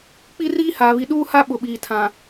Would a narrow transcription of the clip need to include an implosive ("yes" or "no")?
yes